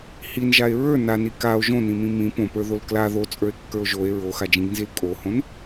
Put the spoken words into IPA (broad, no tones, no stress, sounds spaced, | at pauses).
h i n ʒ a e̯ ɹ ə˞ n a n i k a o̯ ʒ õ n ĩ m ĩ m ĩ p õ p ə˞ ð o l k l a ð o t͡sʼ ə˞ e̯ kː ə˞ o̯ ʒ o e̯ ɹ o x a d͡ʒ ĩ ɡ n z i l kʼ o h õ n